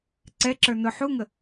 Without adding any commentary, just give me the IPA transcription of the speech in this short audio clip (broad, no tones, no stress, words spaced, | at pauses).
ǀɛǁə˞ nʊ ħuŋə